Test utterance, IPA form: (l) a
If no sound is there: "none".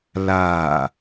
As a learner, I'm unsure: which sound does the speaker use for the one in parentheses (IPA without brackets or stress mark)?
l